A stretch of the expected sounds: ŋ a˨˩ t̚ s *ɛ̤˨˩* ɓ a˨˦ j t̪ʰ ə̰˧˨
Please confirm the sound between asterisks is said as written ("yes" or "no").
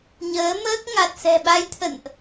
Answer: yes